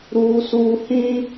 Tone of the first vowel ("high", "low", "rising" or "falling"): high